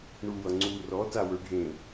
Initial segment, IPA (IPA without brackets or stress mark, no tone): ɳ